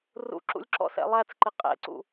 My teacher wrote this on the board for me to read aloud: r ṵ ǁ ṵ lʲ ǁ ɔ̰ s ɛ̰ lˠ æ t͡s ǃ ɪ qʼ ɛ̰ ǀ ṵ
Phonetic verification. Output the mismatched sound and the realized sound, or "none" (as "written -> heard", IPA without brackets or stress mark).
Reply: none